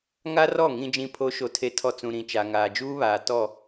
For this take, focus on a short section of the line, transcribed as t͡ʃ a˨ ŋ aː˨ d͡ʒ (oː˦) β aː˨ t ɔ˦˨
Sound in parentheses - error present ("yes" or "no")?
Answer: yes